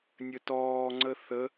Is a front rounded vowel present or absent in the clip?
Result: absent